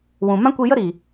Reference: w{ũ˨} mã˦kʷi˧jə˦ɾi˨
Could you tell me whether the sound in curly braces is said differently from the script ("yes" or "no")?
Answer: no